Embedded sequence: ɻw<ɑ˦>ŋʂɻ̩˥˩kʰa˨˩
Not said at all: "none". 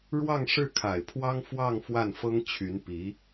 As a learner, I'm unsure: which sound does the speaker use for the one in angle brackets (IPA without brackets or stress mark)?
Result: ɑ˥˧